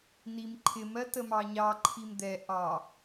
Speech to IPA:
n i m ǃʰ ɪ m ɜ t ə m ɑ ɲ ɑ ǃʰ i m d̪ ɛ ʔ ɑ

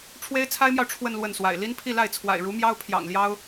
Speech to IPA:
ʈ͡ʂʰ w e˥ ɪ̯ t͡sʰ a˥ ɪ̯ m j ɑ˨ ʊ̯ ʈ͡ʂʰ w ə˥˧ n l w ə˥˩ n s w a̰˨˩ ɪ̯ l i˥ n pʰ i˥˧ l a˥˩ ɪ̯ t͡sʰ w a̰˨˩ ɪ̯ ɻ u˧˥ m j ɑ˥ ʊ̯ pʰ j ɑ̰˨˩ ŋ l j ɑ˥ ʊ̯

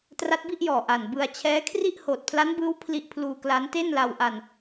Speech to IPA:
t r a˦˥ t̚ b i˥˩ ʔ j ɔː˨˩ ʔ a˨˩ n b ɯ˧ a̯ t͡ɕʰ ɛː˦˥ kʰ r i˥˩ ʔ h oː˨˩ t̚ pʰ l a˦˥ n b ɯː˦˥ w pʰ l i˦˥ ʔ pʰ l uː˧ k l a˦˥ n t e˥˩ n l a˧ w ʔ a˧ n

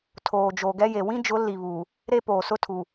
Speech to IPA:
tʰ oː˨ d͡ʒ oː˨ ɡ ɛ˦ j e˨ w ĩ˦ d͡ʒ ʊ˨˦ l i˨ β uː˨ | ɾ e˦ p oː˨ s ʊ˦ tʰ u˨

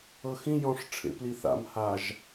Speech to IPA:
ɤ x ĩ j ɔ̃ ʂ ʈ͡ʂʰ ḛ p l i θ a̰ m h a ʒ

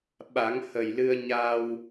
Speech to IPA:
ɓ a˨˩˦ ŋ h ə˨˩ j l ɨ˧ ə̯ ɲ a˧ w

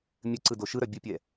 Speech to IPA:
mʲ ɘ ǀ ɯ d o ʃ ɯ ɾ œ bʲ ɘ pʲ ɛ

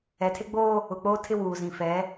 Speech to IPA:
ɛ˨ tʰ e˦ ɡ͡b o˦ | ʊ˨ k͡p oː˦ tʰ ɪ˦ w uː˨ z ĩ˨ f ɛ˨˦

